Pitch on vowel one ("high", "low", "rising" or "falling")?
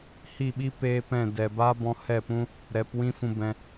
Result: falling